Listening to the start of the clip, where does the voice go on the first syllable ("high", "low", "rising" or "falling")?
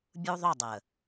high